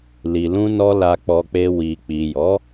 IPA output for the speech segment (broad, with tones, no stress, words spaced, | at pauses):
li˨lũ˧nɔ˧ la˧k͡pɔ˧k͡pe˧ wi˨ k͡pi˨jɔ˨˦